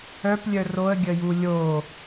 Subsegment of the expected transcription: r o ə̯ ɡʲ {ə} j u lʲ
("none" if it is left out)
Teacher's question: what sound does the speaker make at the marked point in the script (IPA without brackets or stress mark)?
ə